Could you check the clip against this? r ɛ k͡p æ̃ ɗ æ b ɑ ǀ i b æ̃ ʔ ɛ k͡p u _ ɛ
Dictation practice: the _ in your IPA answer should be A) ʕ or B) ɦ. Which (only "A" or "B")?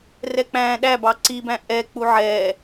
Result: A